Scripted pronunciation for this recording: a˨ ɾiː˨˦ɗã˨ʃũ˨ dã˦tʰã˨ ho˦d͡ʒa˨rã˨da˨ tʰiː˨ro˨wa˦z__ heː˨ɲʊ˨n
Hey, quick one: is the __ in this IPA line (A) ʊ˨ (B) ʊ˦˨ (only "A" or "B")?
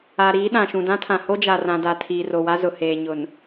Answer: A